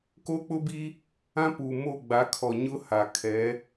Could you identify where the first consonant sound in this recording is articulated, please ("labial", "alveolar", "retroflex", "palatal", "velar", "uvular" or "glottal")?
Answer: velar